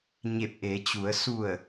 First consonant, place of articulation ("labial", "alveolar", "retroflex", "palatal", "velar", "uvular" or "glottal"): palatal